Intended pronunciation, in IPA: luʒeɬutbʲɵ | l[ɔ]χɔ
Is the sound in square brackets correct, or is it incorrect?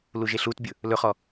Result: incorrect